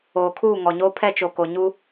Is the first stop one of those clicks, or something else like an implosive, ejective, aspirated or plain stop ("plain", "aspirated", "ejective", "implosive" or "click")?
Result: aspirated